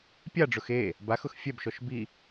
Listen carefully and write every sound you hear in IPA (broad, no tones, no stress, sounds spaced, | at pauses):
pʲ a ɖ͡ʐ ʊ x e | b a x ʊ x fʲ ɛ b ʃ ɔ ʃ b i